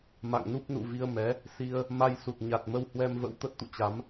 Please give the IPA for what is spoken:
ma̰˧˨ŋnu˦˥p̚ nṵ˧˨vi˧ə̯mɛ˨˦ | si˧ə̯ | ma˧jsu˨˩t̚ɲa˨˩t̚ mə˧whwɛ˧mvə̰˧˥w t̪ə˦˥t̚t̪ṵ˧˨t͡ɕa˨˦m

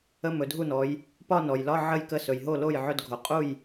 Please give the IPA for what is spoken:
ə˧˥˧mɵ˩˧dʱu˥˩nɔ˩˧j | pɒ˥˧nɔ˩jlɒ˧˥˧ ʕə˥˧jkə˧˥˧ sɵ˩jɦo˥˩lo˥˩j ʕɵ˧˥˧dɡʱo˩ qʼu˥˩j

